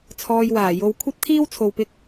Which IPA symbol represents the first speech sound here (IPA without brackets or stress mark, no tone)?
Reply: t͡sʰ